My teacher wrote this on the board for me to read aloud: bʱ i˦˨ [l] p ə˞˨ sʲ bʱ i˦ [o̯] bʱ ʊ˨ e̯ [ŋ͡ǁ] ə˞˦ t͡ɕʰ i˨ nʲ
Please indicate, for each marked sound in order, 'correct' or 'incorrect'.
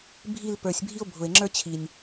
correct, correct, correct

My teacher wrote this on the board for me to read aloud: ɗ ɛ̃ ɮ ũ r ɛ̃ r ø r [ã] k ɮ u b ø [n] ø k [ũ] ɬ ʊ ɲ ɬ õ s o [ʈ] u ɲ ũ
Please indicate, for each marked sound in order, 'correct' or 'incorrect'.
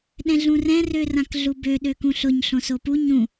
correct, incorrect: ɗ, correct, incorrect: p

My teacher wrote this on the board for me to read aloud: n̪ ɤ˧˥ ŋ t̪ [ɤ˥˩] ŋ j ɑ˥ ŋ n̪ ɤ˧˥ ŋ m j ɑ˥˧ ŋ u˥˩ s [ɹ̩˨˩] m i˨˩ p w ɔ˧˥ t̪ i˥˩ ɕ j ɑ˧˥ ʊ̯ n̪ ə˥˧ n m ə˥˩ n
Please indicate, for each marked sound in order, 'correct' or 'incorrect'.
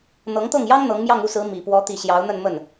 correct, incorrect: ɹ̩˧˥

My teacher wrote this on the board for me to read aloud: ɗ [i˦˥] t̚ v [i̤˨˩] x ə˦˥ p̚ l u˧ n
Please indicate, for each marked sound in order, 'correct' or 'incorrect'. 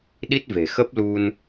correct, incorrect: e̤˨˩

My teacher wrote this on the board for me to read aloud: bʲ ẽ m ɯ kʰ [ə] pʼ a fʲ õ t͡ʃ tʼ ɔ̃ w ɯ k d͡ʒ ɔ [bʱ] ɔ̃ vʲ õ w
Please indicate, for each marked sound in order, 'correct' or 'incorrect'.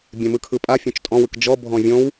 incorrect: ɯ, correct

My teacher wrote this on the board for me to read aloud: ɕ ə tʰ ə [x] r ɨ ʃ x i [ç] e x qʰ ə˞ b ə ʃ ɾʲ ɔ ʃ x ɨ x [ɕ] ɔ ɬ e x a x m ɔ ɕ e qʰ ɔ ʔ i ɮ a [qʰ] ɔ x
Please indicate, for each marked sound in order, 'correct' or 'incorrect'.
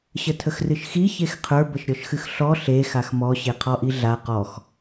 correct, correct, incorrect: ɬ, incorrect: q

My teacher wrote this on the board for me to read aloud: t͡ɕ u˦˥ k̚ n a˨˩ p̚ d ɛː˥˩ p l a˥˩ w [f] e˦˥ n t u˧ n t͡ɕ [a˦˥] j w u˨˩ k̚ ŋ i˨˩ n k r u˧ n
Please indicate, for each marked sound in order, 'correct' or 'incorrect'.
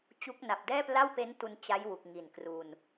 incorrect: p, correct

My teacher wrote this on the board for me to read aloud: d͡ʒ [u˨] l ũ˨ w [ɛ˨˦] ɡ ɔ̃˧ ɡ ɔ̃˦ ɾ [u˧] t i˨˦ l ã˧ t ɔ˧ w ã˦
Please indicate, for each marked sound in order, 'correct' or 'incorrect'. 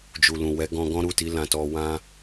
correct, correct, incorrect: u˦˨

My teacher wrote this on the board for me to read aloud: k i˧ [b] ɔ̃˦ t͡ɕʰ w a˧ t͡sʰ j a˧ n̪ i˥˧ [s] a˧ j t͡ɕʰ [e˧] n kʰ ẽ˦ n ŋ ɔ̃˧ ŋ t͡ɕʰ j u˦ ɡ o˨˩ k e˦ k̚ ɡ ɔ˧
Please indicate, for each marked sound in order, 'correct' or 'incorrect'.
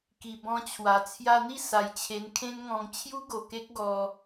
correct, correct, correct

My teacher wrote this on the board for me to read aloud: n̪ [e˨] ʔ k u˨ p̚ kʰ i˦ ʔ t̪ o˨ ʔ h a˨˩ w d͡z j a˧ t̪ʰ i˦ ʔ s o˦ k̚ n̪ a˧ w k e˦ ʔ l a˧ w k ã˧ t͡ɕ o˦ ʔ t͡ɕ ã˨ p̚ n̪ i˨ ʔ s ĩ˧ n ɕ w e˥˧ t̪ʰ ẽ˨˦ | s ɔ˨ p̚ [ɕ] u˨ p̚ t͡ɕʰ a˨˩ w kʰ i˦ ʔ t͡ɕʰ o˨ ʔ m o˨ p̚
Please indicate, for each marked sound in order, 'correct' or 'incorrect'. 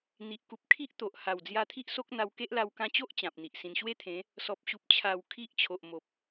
incorrect: i˨, correct

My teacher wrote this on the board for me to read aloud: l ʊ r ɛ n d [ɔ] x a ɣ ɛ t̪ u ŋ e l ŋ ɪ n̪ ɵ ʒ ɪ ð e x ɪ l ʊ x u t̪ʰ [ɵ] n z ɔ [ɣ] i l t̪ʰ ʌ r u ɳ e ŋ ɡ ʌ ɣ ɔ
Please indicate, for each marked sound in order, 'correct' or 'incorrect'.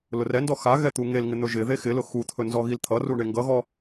correct, correct, correct

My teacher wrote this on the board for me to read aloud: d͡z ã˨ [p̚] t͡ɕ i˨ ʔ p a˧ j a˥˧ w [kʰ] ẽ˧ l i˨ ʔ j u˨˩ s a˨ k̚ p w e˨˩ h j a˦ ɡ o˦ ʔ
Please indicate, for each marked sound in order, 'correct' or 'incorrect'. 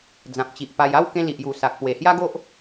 correct, incorrect: k

